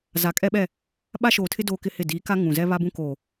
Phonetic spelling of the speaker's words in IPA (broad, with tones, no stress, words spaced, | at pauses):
za˨kʼɛ˦ɓɛ˦˨ | ɓa˦ʃoː˨tʰɪ˦ doː˦kɪ˦hɪ˦˨ diː˨˦ka˦ ŋũ˨ zɛ˦βa˦bũ˦koː˨